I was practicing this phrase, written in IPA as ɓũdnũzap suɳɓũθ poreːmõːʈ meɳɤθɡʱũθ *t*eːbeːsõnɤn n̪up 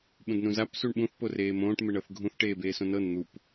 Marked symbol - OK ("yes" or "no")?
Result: no